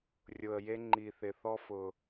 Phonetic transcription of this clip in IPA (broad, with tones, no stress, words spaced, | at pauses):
rʲʊ˧ə̯je˦ ŋ͡ǃi˧θɪ˧θɔ˦ fʊ˧